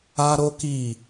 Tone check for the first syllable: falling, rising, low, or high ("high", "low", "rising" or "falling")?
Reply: high